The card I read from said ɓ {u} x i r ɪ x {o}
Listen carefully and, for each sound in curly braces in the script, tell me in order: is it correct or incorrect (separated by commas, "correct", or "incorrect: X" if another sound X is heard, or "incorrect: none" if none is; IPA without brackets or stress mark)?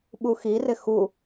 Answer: correct, incorrect: u